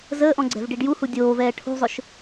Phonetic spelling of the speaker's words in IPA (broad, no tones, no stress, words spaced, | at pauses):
zəːʔɔ̃ɡ͡ǀɛ̤vɖiɖ juhu dʲoːvɛː ʈʰṳzˤʊʃ